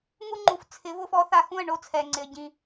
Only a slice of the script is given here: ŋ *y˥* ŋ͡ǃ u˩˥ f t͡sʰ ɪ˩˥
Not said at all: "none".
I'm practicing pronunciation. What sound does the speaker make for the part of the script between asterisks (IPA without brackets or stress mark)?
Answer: u˥